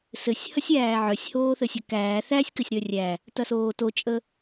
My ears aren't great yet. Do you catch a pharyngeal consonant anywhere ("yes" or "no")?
yes